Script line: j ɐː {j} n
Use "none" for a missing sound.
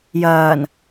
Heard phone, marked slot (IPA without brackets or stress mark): none